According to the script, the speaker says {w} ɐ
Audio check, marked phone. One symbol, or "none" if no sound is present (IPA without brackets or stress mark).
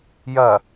j